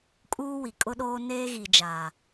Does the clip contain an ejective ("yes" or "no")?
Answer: yes